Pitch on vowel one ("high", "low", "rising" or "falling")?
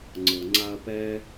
low